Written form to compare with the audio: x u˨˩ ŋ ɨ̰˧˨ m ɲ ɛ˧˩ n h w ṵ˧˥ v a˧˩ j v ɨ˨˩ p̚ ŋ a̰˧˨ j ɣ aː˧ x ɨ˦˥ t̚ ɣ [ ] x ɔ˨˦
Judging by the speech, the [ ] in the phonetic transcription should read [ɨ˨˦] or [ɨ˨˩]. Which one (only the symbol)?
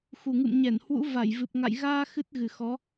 ɨ˨˩